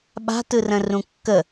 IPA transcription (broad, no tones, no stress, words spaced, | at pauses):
ɓa̤tɯrə̃ rũkːə